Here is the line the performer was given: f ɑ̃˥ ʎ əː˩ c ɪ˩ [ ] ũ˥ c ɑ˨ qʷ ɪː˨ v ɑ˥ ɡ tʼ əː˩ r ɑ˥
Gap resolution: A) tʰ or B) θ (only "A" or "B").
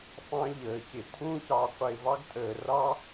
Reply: A